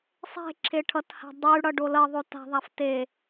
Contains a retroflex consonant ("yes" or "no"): yes